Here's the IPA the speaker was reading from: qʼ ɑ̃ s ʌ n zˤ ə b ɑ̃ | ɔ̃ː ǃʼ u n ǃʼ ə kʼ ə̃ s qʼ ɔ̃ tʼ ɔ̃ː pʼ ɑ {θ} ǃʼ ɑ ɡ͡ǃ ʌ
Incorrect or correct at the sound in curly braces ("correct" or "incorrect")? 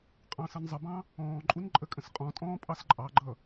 incorrect